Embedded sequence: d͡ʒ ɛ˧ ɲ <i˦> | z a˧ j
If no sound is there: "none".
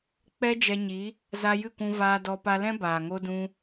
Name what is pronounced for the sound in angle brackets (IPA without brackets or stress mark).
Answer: i˨˦